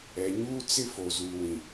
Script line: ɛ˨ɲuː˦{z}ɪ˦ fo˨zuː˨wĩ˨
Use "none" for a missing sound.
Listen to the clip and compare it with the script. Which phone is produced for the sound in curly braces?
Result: t͡s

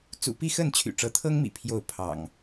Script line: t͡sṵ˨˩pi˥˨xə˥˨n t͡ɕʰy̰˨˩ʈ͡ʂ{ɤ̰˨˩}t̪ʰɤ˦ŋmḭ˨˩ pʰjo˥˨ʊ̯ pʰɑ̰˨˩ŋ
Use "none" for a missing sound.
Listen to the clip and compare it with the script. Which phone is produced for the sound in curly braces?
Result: ɤ˨˦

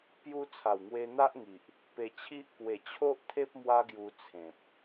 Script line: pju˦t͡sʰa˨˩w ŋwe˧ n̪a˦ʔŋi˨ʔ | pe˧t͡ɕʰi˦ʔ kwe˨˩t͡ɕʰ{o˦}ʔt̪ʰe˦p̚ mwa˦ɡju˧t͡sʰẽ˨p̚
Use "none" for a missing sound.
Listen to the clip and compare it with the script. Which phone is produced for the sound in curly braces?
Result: o˦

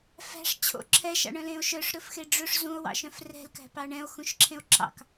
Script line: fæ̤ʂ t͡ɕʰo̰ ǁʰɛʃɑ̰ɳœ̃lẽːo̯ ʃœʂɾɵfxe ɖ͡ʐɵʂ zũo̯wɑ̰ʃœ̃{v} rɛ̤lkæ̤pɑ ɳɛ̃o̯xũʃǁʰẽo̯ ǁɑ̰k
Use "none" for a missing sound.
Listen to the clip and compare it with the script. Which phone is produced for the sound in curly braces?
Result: f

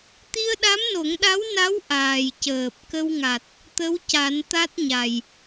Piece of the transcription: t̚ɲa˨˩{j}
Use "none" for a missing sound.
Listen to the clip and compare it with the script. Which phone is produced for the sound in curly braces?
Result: j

